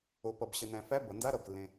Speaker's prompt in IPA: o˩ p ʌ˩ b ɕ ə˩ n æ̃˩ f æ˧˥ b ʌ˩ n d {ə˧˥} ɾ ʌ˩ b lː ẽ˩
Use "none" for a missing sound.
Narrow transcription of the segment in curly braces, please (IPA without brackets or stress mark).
a˧˥